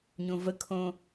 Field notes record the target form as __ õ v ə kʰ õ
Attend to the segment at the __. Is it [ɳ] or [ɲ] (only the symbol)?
ɲ